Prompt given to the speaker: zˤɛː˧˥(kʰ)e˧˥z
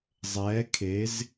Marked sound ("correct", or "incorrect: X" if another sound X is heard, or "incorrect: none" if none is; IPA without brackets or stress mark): correct